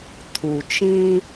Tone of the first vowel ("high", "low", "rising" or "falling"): low